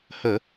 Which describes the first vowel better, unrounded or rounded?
unrounded